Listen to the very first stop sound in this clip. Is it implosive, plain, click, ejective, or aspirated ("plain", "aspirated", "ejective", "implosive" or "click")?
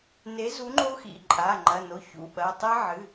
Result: click